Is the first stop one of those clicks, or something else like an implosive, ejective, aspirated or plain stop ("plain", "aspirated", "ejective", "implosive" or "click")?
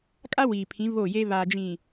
ejective